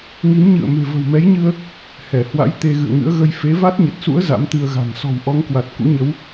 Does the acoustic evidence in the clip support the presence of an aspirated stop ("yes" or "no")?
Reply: no